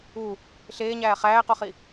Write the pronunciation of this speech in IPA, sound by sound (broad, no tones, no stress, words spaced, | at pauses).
u | ɬeːɲæː χæːqoχi